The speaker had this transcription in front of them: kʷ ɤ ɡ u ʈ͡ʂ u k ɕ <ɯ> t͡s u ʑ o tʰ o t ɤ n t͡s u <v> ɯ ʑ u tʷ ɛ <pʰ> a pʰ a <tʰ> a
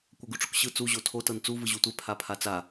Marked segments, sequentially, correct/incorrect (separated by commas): correct, correct, correct, incorrect